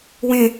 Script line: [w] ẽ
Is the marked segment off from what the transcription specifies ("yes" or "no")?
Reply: no